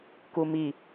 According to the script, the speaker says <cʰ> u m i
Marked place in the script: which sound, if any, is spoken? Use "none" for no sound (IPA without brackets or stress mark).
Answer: k